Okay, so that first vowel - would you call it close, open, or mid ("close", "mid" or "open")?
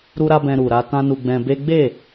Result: close